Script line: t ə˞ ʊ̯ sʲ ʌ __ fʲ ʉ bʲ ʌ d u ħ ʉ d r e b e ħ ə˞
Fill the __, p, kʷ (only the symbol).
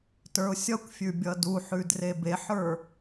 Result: kʷ